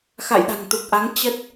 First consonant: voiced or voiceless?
voiceless